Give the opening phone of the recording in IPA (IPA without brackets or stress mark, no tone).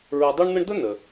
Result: ɹ